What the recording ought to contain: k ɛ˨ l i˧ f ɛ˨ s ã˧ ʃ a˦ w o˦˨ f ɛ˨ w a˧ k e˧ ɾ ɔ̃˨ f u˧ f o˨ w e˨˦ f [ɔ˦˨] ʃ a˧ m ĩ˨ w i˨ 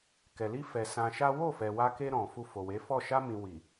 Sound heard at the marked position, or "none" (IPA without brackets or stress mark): ɔ˦˨